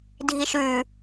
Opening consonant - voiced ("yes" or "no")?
yes